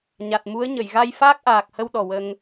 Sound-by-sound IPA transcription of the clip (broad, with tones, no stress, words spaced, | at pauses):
ɲa˨˩t̚mu˧˥ə̯ɲə˨˩˨j ɣa˧jfaː˦˥k̚ʔaː˨˩k̚hə˧w ɗɔ˨˩wə˧ŋ